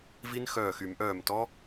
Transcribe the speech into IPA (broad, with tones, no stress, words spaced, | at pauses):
vi˦˥nxœː˧˩xy˨˩˦mʔœː˧˩m tɔ˦˥